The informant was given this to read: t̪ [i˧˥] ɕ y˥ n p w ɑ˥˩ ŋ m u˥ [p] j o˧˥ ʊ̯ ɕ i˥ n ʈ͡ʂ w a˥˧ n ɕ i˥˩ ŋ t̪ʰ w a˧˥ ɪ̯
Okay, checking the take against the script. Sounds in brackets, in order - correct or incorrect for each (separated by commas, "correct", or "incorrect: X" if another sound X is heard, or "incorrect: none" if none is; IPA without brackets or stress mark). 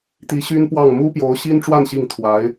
correct, correct